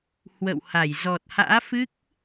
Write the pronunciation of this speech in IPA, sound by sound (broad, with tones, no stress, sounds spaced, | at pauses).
h w ə̰˧˨ w h a˧˩ j z ɔ˨˩ t̚ h a̰ː˧˥ f ɨ˦˥ k̚